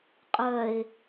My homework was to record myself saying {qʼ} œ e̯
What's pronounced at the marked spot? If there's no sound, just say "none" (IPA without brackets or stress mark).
qʼ